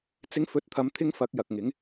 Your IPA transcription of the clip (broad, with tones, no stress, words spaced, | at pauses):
t͡sɪ˨˥ŋfɵ˨˥t̚t̪ʰɐ˨˧mt̪ʰɪ˧ŋ fɐ˨˥k̚jɐ˨k̚ŋɪ˨˥ŋ